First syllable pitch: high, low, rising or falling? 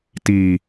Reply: low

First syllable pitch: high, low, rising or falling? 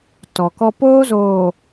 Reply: low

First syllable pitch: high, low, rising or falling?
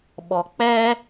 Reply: high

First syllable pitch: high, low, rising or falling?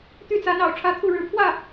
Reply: falling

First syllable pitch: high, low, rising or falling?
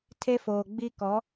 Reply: high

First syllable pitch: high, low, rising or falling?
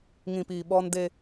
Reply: low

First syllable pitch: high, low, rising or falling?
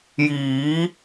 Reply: rising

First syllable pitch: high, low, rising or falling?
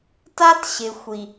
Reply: high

